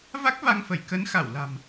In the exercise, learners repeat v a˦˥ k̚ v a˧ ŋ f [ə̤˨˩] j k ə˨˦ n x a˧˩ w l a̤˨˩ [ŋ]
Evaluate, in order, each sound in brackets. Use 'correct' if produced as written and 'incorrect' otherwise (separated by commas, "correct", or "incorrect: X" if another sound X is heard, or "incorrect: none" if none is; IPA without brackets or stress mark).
incorrect: ə˧˩, incorrect: m